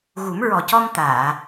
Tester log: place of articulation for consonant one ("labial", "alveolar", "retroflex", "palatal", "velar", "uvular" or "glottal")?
velar